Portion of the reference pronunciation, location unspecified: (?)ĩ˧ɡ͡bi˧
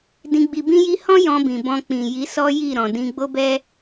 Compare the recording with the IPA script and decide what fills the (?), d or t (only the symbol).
d